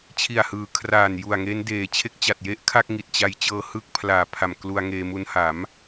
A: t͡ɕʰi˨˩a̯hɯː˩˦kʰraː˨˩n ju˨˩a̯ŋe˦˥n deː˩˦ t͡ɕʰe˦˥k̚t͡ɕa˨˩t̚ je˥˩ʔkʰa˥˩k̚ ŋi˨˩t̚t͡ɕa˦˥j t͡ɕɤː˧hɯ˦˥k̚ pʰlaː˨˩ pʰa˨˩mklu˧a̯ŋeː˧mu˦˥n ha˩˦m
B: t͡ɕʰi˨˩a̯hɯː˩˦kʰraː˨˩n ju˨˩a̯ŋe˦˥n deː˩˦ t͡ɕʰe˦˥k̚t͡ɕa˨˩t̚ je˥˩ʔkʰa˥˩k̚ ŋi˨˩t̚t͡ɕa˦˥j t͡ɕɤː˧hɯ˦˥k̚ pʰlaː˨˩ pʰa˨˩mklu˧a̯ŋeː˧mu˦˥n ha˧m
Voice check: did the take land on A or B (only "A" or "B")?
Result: A